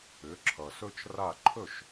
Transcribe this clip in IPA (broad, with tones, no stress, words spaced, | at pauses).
ʏ˩˥ǁʰʌ˩sɵ˥t͡ʃra˥˩ ǃʰɵ˥˩ʃ